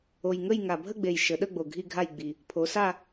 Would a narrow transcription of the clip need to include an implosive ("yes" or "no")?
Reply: yes